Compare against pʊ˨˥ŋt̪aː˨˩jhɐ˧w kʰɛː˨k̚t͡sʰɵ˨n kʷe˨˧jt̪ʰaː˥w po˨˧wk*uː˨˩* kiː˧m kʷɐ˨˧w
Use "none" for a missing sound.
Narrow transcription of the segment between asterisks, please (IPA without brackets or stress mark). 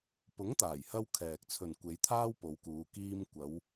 uː˨˧